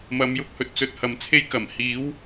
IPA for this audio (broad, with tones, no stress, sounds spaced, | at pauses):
m ɐ˧ m j ʊ˥ k̚ h ɵ˧ t̚ t͡s ɵ˧ t̚ h ɐ˨ m t͡sʰ e˥ j k ɐ˨˩ m h iː˨˥ w